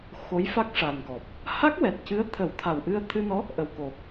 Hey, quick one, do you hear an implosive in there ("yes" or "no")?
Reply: no